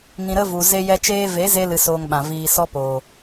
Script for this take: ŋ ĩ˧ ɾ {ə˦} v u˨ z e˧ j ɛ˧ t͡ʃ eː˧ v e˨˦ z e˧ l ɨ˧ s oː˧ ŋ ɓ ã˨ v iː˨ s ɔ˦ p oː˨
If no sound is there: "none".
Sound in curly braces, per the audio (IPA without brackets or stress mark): ə˦